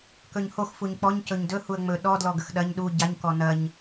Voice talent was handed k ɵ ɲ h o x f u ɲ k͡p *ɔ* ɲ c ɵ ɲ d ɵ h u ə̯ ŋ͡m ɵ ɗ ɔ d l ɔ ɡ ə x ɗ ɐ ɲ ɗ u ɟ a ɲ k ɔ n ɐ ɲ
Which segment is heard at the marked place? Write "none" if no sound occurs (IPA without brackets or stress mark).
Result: ɔ